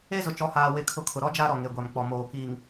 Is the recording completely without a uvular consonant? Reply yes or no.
yes